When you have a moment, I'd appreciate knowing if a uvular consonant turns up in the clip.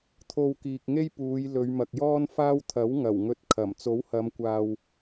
no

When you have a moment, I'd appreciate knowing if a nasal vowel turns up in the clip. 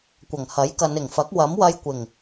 no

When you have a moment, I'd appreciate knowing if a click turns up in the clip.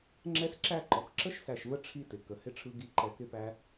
yes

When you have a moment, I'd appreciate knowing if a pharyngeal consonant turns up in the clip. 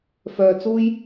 no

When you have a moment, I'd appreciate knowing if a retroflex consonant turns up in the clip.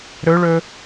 yes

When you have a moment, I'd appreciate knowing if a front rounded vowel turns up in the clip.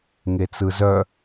yes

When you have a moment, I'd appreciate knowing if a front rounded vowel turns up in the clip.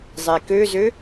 yes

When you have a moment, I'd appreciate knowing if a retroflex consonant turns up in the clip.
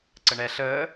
yes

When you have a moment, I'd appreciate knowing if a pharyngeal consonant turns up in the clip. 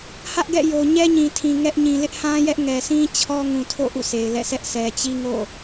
no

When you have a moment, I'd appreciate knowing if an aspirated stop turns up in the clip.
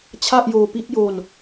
yes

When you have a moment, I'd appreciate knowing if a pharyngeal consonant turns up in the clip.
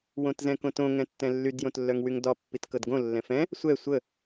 no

